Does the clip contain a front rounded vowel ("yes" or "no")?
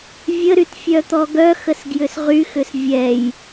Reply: yes